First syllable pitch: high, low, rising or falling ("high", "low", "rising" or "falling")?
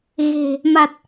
low